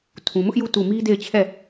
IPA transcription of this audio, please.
tʰ ũ˨ m ʊ˦ ʔ j u˦˨ t u˦˨ m i˦ d e˦˨ ɪ̯ t͡ɕʰ ɛ˦˨

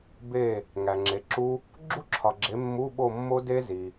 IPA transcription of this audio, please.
b e˦˨ | ŋ æ˨ ŋ͡ǁ e˨˦ ǁ u˦˥ | ɡ͡ǁ u˦˥ ǁʰ ɒ˨ ɡ͡ǁ e˨˦ mː u˧˥˧ ɓ o˦˨ mː o˦˥ d e˦˥ z i˨

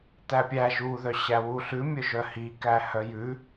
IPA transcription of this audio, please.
t æ pʲ æ ʒ u ð œ ɕ æ w u ɬ ʉ mʲ œ ʒ œ h i k æ h œ j ʉ

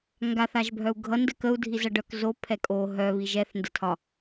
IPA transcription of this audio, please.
ŋ ɡ a θ a ʒ bʱ œ u̯ ɡʱ ʌ n d ə k ə u̯ dʱ i z ʌ ɖ œ k z o pʰ ɛ kʼ o ɦ œ β i ʒ ɛ θ n d ə tʰ ɒ

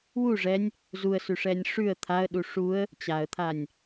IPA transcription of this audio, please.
w u ʐ ɛ nʲ | z u ə̯ s ʉ ʂ ɛ nʲ ʂ ʉ ə̯ t̪ʰ a ə̯ ɗ u ʂ u ə̯ | t͡ɕ a ə̯ t̪ʰ a nʲ

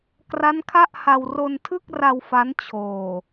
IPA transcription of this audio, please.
k r a˦˥ n kʰ a˥˩ ʔ h a˧ w r o˧ n tʰ ɯ˥˩ k̚ r a˧ w f a˦˥ n t͡ɕʰ oː˨˩

